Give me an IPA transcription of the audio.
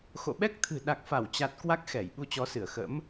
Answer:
x o̰˧˨ ɓ ɛ˦˥ k̚ t̪ʰ ɨ̤˨˩ ɗ a˨˩ k̚ f a˧˩ w t͡ɕ a˨˩ t̚ k w a˦˥ k̚ x ɛ˧˩ j ɓ u˧ t͡ɕ ɔ˨˦ s ɨ˧˩ ə̯ x ə̰˧˥ m

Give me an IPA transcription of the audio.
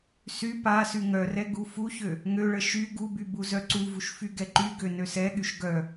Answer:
s y p a s y ŋ œ r ɛ ɡ u f u ç ø | ŋ ø ɭ ə ʃ y ɡ u b y b u z œ ǀ u v u ʃ f y ɡ ɛ ǃ y ɡ ø n ø s ɛ ɠ y ʃ ɡ œ

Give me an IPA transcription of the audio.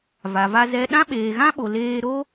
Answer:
v a˨ v a˧ z ɛ˦ ɗ ã˦ ɓ eː˨ ɣ ã˦ ɓ o˨ l eː˧ ɾ o˦

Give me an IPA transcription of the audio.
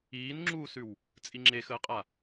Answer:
iː n ŋ͡ǁ uː s ʉ w | t͡sʼ i ŋ͡ǁ e x əː qʼ a

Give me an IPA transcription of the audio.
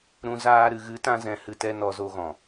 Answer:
ɾ ũ˧ z aː˧ ɾ ɨ˨ ɣ ɨ˨˦ t ã˧ z ɛ̃˨ h ɨ˨ t ɛ˨ n ɔ˧ z o˧ ɣ ɔ̃˨

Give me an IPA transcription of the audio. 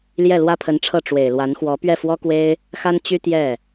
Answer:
l j ɛ˥˩ l w ä˥ pʰ ə˧˥ n ʈ͡ʂʰ ɤ˥˩ ʈ͡ʂ w e˨˩ ɪ̯ l w a˧˥ n x w ɔ˧˥ p ɥ ɛ˥˩ f w ɔ˥ k w e˥ ɪ̯ | x a˥ n t͡ɕ y˥ t̪ j ɛ˥˩

